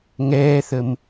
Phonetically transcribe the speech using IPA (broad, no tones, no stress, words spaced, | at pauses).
ŋɛːθəm